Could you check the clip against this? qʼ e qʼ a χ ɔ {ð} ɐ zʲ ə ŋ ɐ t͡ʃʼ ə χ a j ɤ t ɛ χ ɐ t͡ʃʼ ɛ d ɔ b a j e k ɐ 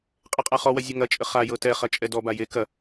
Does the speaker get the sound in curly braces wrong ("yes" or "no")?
yes